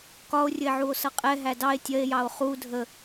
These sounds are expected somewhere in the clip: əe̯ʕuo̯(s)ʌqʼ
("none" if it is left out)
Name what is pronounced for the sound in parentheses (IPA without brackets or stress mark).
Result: s